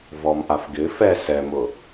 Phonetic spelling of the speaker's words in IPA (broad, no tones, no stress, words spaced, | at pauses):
vɔmʔafɡɪ fɛ sɛmʊ